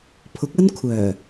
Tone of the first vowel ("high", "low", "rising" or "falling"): rising